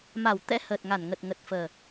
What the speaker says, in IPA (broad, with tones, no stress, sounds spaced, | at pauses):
m a˧˩ w t̪ ɛ̰˧˥ h əː˨˩ t̚ ŋ a˧˩ n ŋ ə˨˩ t̚ ŋ ə˨˩ t̚ f əː˨˩